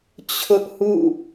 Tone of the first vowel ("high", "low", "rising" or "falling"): high